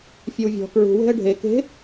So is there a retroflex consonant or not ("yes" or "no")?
yes